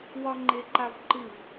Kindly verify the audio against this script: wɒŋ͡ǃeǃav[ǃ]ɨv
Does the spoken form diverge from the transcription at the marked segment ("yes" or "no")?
no